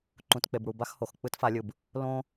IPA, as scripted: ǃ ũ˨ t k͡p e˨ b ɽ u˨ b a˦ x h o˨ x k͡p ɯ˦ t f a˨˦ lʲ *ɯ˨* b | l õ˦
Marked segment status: correct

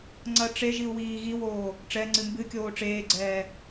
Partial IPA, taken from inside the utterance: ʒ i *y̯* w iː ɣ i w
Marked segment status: incorrect: u̯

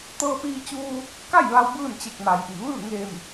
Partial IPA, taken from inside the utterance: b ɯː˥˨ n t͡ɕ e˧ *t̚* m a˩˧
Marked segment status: incorrect: k̚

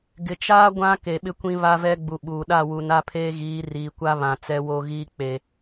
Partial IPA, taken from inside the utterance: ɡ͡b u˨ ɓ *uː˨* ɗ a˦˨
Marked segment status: correct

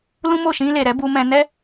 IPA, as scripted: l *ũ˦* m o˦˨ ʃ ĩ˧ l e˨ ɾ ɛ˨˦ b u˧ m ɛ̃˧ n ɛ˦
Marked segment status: correct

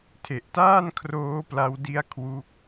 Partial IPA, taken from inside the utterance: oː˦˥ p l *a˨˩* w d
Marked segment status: incorrect: a˧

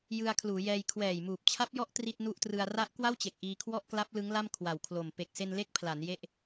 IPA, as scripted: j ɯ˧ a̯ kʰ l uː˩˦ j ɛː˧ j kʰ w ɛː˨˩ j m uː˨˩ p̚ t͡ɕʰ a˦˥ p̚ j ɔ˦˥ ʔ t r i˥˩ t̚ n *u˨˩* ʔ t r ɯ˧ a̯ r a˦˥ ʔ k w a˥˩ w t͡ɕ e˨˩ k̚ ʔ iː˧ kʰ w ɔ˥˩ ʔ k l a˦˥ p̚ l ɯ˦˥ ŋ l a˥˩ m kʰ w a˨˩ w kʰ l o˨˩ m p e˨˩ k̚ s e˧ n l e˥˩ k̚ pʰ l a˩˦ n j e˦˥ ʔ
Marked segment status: incorrect: u˥˩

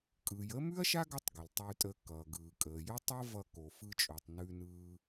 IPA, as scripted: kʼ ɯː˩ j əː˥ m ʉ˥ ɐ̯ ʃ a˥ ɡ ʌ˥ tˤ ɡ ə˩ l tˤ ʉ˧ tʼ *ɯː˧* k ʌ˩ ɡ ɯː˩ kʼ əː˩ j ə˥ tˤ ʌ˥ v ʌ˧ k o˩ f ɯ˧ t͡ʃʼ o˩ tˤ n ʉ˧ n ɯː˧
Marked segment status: incorrect: əː˧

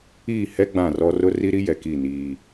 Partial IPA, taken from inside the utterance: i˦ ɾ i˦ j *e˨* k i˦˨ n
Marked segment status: incorrect: ɛ˨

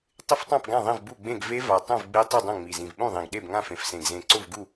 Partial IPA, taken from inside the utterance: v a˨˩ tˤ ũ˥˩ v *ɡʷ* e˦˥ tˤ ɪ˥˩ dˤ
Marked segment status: incorrect: ɡ͡b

